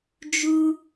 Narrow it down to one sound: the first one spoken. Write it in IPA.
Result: d͡ʒ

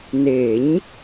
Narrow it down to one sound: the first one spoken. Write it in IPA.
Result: n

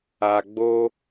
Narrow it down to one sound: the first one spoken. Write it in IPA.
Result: a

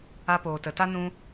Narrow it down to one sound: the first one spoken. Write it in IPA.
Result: a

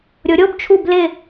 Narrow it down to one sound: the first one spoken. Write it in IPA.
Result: ɾʲ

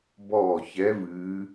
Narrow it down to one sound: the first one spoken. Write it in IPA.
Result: b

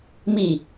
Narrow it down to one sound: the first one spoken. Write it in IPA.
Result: m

